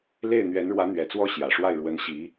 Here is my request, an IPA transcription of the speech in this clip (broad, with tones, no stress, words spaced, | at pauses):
le˥˩ɪ̯ n̪ɥɛ˧˥nɻwä˧˥n̪ɥɛ˨˩t͡swɔ˥˩ ɕjä˨˩ʂwa˥˩ɪ̯ ɻwə˧˥nɕi˧˥